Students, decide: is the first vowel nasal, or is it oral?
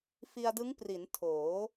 oral